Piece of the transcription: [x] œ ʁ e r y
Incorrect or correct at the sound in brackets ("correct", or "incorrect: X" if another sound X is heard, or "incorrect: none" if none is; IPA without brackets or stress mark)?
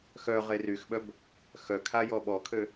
correct